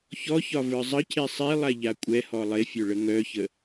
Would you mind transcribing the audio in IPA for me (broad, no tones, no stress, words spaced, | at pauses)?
çɔçɒ və˞zˤəcʰe sˤi lˠaʎakʷʼɛhɔ lˠefʲœ ɭəŋœçə